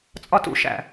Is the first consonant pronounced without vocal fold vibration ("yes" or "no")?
yes